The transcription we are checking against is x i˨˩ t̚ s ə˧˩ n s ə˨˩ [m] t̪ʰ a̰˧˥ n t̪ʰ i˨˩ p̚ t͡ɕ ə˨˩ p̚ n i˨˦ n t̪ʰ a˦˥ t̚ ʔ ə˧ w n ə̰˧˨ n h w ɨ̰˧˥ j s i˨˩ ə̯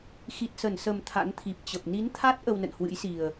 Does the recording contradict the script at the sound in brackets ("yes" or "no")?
no